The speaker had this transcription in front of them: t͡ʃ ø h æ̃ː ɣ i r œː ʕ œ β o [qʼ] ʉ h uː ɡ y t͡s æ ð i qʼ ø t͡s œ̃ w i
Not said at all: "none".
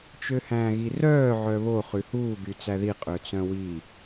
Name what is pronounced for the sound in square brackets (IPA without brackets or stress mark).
χ